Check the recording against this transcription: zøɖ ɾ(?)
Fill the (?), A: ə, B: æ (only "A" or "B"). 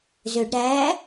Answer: B